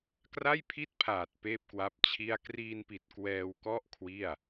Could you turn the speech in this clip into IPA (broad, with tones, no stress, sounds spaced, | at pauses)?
k r a˥˩ j pʰ i˥˩ t̚ pʰ aː˨˩ t̚ p eː˥˩ p̚ k w a˦˥ p̚ t͡ɕʰ i˥˩ a̯ k r iː˧ n p i˨˩ t̚ k w ɛː˧ w k ɔ˥˩ ʔ kʰ w i˥˩ a̯